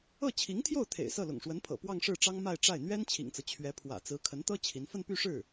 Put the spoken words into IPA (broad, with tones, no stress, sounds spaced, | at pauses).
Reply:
ɤ˥˩ t͡ɕʰ i˧˥ ŋ t̪ʰ j o˥˩ ʊ̯ t̪ʰ ḛ˨˩ ɪ̯ s ɤ˥˩ l ʊ̰˨˩ ŋ ʂ w ə˧˥ n pʰ ɤ̰˨˩ p w ɑ˥˧ ŋ ʂ ɻ̩˥˩ ʈ͡ʂ ɑ˥ ŋ m a˥˧ ɪ̯ ʈ͡ʂ a˥˩ ɪ̯ n̪ ɥ ɛ˥ n t͡ɕʰ ḭ˨˩ ŋ t͡s ɤ˦ t͡ɕʰ ɥ ɛ˧˥ pʰ w ä̰˨˩ t͡s ɹ̩˧˥ kʰ ə˧˥ n t̪ ɤ˥ t͡ɕʰ i˧˥ n f ə˥˧ n p y˥˧ ʂ ɻ̩˥˩